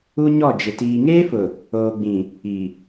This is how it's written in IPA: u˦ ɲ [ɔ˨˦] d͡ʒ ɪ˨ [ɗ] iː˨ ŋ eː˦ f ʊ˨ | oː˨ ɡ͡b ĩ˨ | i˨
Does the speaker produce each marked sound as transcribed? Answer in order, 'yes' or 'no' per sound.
no, no

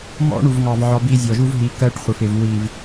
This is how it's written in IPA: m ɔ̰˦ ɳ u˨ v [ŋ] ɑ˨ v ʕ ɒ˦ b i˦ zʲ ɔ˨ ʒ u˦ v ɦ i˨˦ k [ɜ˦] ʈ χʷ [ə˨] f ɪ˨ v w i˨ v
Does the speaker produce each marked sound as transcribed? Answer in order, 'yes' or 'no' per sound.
yes, yes, yes

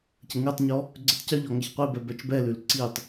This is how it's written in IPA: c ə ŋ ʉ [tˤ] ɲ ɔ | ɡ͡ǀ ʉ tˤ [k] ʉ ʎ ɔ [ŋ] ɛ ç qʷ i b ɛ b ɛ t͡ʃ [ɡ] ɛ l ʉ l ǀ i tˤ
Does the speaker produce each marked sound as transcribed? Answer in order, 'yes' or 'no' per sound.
yes, no, yes, no

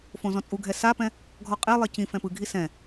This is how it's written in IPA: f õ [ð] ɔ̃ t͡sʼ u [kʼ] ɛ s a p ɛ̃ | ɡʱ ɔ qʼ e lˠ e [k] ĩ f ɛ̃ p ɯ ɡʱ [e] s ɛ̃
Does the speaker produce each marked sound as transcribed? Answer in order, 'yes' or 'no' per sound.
no, no, no, no

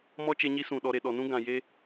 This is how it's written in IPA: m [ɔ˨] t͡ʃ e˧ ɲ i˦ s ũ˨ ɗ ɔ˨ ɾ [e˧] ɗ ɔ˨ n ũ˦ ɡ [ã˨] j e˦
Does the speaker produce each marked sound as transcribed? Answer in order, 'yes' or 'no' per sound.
no, no, yes

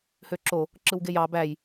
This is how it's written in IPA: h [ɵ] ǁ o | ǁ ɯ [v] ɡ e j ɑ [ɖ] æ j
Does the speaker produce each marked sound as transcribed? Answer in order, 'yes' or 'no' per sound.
no, no, no

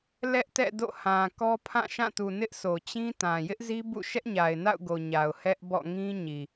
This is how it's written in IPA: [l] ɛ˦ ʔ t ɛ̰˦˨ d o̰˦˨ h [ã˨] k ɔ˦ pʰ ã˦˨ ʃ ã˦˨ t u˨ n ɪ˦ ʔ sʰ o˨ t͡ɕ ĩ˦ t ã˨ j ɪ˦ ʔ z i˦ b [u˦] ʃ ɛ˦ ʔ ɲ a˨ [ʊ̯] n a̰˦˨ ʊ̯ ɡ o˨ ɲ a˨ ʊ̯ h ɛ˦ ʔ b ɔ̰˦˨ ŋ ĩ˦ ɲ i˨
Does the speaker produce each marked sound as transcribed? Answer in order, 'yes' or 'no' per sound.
yes, yes, no, no

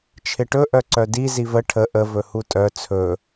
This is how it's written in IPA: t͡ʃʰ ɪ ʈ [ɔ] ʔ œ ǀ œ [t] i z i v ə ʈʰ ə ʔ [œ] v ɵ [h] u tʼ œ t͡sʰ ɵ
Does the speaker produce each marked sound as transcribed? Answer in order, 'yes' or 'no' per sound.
no, no, no, yes

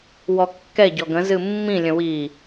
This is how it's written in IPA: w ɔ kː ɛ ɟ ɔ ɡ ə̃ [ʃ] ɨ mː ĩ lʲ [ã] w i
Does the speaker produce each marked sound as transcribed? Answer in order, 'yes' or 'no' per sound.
no, no

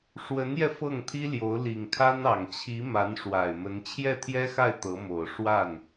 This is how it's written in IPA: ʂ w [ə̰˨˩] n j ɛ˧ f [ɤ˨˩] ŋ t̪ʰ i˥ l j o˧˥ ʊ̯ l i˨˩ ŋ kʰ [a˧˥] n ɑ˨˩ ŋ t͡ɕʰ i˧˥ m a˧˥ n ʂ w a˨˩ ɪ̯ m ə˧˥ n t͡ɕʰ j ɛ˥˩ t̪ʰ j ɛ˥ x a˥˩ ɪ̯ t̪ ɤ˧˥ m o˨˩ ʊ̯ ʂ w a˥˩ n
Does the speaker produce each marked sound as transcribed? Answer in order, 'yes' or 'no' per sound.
no, no, no

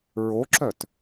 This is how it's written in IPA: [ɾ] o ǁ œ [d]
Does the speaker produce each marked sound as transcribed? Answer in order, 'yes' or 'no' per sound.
no, no

